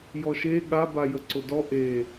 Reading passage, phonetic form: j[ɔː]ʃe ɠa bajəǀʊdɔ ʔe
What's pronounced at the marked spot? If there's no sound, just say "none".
ɔ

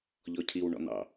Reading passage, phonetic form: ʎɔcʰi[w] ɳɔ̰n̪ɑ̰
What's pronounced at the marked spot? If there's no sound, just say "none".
w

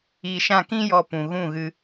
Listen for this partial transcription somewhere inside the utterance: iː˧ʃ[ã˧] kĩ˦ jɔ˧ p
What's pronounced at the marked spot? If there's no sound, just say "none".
ã˦˨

